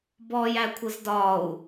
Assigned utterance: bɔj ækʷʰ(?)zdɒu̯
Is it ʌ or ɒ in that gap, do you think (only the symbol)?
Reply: ʌ